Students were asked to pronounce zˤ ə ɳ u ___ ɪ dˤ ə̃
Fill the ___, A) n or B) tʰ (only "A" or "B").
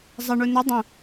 A